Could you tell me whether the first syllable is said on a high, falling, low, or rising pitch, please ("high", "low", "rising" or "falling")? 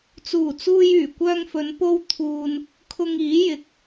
low